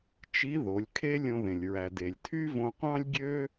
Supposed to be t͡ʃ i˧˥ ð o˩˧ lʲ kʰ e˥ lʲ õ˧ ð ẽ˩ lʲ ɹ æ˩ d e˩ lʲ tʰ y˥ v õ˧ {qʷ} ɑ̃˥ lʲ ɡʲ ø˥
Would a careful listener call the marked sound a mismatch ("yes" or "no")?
no